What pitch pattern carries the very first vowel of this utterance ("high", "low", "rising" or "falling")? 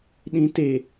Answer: low